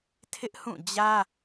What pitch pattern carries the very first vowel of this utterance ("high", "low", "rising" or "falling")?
high